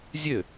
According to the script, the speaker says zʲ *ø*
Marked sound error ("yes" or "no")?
no